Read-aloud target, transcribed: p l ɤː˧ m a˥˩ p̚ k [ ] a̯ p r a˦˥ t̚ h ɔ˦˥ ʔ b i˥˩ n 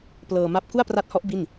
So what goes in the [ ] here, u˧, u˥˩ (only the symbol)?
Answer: u˥˩